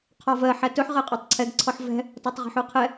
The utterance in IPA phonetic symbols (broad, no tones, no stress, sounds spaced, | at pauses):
qʰ ɔ v ɜ ħ æ t ɵ ħ ʁ ɜ qʼ æ tˤ ǀʰ ɛ ɡ ǀʰ ɔ ħ v ɛ̤ | t ɔ tˤ ʁ ɛ̤ ħ u qʰ ɛ